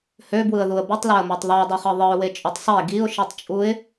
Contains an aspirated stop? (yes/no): no